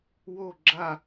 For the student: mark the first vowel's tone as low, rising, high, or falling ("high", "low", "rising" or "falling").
falling